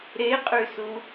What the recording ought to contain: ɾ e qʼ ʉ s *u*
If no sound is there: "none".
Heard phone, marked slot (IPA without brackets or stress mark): u